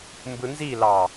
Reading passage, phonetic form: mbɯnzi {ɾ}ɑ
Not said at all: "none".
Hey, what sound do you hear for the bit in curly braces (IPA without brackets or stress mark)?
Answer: l